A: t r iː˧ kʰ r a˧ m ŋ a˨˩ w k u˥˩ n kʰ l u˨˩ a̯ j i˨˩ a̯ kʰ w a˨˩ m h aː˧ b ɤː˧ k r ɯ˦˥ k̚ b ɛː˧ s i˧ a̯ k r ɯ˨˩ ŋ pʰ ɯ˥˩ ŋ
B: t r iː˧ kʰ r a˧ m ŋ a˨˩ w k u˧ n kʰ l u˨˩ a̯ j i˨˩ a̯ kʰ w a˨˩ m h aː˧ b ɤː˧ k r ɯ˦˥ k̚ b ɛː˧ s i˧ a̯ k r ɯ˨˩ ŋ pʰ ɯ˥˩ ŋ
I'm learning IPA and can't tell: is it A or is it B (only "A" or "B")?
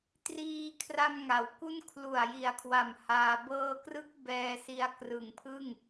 A